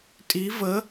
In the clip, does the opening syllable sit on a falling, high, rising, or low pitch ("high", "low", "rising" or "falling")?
rising